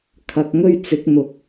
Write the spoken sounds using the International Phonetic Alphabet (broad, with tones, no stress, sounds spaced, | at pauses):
kʰ ɐ˨ k̚ ŋ ɵ˥ ɥ t͡s ɪ˨˥ k̚ n̪ ʊ˨˥ k̚